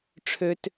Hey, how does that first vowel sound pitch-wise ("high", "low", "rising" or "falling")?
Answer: low